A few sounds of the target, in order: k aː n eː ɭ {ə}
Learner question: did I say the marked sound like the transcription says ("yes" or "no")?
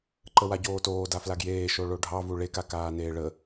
yes